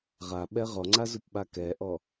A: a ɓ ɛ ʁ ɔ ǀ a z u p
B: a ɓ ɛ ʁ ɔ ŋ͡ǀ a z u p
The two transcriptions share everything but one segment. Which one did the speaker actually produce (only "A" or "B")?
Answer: B